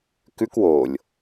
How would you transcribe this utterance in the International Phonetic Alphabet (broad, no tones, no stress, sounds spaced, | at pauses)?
k ʉ k w o lʲ